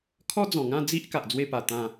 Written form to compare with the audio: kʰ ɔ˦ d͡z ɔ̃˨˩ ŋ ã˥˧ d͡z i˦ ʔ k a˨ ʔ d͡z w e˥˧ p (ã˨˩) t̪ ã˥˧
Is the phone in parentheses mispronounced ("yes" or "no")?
yes